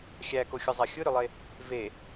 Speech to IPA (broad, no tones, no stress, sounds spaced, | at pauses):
xʲ æ k o xʲ ɯ zˤ a xʲ ɯ ɾ ʏ lˠ e | v e